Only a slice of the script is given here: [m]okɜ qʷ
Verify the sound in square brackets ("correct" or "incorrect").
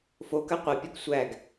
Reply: incorrect